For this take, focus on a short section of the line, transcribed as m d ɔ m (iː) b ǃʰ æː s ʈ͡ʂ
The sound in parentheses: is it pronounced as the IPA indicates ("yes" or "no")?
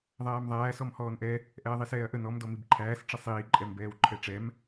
no